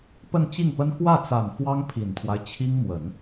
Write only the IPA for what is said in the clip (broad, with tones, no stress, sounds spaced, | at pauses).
p ə˥˧ n t͡ɕ i˥˩ ŋ p ə˥ n x w ä˥˩ t͡s a˨˩ n f w ɑ˥ ŋ pʰ i˨˩ n t̪ʰ w a˦ ɪ̯ t͡ɕʰ i˥ ŋ m w ə˨˩˦ n